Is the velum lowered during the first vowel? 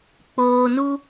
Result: no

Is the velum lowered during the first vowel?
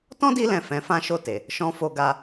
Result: yes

